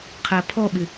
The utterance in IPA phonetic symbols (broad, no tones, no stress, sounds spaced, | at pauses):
qʰ æ pʰ ɔ ɓ ɪ